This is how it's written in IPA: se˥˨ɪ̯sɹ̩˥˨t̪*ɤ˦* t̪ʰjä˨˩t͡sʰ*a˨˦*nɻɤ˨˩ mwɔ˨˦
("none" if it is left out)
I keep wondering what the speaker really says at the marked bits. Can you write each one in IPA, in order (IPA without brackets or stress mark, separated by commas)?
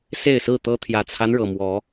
ɤ˦, a˦